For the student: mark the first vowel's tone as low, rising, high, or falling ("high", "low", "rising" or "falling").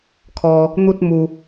high